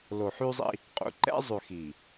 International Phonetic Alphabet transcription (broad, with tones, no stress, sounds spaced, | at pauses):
l o˨ ħ y˦ zˤ ḭ˦ | qʼ ṵ˨ ǃ ɛ̰˦ zˤ ʉ˨ x i˨